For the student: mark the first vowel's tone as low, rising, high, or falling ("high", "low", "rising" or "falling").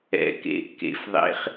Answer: low